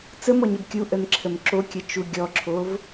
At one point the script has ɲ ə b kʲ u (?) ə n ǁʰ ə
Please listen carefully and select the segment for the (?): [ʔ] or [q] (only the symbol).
ʔ